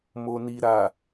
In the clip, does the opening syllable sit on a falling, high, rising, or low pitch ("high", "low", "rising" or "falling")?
low